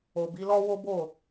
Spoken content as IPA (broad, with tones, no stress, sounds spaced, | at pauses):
o˨ b i˨˦ l ɔ˦ w o˦ b o˦˨